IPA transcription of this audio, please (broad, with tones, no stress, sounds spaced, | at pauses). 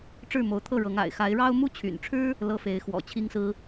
ʈ͡ʂ ɻ̩˥˩ m o˧˥ ʊ̯ t̪ʰ ɤ˥˩ ɻ ɤ˧˥ ŋ a̰˨˩ ɪ̯ x a˧˥ ɪ̯ ɻ ɑ˥ ʊ̯ m u˥˩ t͡ɕʰ y̰˨˩ n ʈ͡ʂʰ ɻ̩˥ | l ɤ˥˩ f e˧˥ ɪ̯ x w ɔ̰˨˩ t͡ɕʰ i˥ ŋ s ɹ̩˥